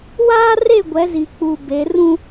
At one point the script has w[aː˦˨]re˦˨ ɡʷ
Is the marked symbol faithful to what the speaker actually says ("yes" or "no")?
no